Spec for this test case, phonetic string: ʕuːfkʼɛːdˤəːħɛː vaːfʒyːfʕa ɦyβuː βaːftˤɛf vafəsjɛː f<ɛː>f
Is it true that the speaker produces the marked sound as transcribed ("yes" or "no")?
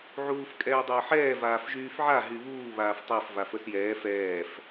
yes